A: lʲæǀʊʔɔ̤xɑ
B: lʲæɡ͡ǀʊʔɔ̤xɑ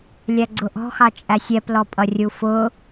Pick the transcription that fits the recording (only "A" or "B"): B